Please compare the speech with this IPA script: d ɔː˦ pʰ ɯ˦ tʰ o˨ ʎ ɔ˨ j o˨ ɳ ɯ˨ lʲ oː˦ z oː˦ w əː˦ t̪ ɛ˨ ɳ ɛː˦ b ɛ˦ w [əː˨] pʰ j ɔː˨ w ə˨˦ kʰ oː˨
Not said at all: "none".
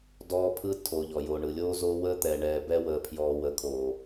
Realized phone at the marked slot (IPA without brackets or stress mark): əː˨